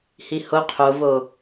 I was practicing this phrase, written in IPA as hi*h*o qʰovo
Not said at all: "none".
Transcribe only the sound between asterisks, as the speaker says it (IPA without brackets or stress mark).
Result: h